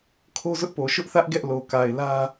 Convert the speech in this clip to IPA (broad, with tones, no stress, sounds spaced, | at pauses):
kʰ o˦ z ʊ˦ ʔ p o˨ ʃ ʊ˦ ʔ θ ä˦ ʔ ɡ ɛ˦ ʔ l o˨ k a˨ ɪ̯ l ä˦